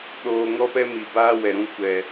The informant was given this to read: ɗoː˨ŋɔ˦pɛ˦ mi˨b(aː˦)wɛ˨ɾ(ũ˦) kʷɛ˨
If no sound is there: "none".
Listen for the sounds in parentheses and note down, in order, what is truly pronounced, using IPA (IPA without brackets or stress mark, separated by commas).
aː˦, ũ˧